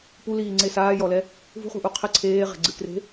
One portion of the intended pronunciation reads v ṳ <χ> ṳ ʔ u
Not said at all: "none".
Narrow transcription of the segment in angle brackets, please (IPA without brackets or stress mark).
χ